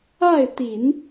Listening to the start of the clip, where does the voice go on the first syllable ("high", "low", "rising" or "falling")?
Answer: falling